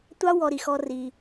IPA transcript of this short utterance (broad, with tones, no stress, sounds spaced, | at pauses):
tʷ ɑ˦ w ɔ˧ ɾ i˨ x ɔ˧ r i˧